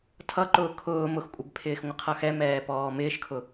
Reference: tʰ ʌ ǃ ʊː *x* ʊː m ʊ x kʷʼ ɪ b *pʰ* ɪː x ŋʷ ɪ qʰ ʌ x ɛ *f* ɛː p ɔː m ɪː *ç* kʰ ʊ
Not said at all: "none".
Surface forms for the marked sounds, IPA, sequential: kʰ, pʰ, m, ʃ

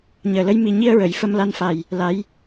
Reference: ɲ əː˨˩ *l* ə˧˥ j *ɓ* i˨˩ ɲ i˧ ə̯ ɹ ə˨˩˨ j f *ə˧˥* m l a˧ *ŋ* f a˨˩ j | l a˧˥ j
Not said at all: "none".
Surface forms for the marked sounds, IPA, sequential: l, m, ə˧, n

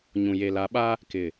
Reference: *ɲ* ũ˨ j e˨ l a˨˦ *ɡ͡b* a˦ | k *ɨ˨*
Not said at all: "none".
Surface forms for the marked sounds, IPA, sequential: ɲ, ɓ, ɪ˨

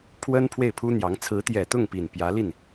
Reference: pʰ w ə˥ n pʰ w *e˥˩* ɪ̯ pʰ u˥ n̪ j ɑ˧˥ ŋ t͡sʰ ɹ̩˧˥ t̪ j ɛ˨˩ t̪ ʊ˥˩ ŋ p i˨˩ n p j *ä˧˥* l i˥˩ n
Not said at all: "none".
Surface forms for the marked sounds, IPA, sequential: e˥˩, ä˧˥

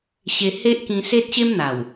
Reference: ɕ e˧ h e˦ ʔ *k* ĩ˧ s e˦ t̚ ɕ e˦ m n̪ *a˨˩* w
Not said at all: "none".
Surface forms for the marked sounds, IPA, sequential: k, a˨˩

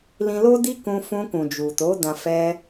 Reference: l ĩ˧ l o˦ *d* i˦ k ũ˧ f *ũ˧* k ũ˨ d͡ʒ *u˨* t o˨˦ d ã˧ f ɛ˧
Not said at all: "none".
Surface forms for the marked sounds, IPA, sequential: d, ũ˧, u˨

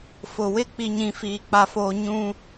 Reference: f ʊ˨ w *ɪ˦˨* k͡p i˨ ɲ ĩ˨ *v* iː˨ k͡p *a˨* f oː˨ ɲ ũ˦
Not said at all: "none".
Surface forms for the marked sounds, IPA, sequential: ɪ˦˨, f, a˨

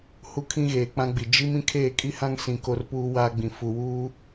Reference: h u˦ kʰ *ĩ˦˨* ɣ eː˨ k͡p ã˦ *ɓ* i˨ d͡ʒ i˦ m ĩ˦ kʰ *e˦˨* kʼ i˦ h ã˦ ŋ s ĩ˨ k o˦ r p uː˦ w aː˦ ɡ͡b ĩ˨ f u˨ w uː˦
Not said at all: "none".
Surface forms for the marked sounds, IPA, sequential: ĩ˦, ɡ͡b, eː˦˨

